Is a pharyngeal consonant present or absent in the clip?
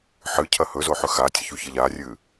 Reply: present